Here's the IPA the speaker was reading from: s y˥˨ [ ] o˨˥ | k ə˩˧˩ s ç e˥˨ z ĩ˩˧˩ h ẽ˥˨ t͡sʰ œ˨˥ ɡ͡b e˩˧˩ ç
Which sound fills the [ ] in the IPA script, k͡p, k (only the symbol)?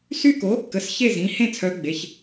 k